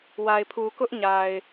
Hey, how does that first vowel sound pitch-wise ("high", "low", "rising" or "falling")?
low